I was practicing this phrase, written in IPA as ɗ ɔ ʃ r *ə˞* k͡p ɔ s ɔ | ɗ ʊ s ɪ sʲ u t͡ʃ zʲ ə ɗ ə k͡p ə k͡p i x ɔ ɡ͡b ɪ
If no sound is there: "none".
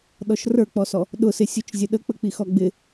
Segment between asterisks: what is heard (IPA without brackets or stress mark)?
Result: ə˞